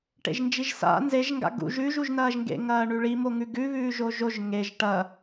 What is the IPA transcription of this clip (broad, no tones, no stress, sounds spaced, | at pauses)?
ʈ ḛ ʒ n d͡ʒ i ʒ s a̰ n z e ʒ ŋ ɡ a̰ ɡ ṵ ʒ ʉ ʒ u ʒ n ɐː ʒ ŋ ɡ ḛ ŋ ɐː ɳ ʉ ɭ i m o ŋ ʉ ɡ ʉ β ʉː ʒ o ʒ o ʒ ŋ e ʒ ʈ ɐ